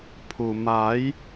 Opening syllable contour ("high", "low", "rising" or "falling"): low